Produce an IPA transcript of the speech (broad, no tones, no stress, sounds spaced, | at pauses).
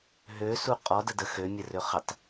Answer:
ɦ ø s u qʼ ɔ d ə d ə x ø mʲ ə r ø χ ə tˤ